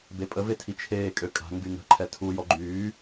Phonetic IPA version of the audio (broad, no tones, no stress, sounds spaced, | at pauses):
b e pʼ ə v e tʰ i t͡ʃʰ eː kʼ ø kʼ a̤ ŋ ɡ y ŋ ə̤ ǃʰ ɛ tʰ u j ɔ ɡ͡ǃ yː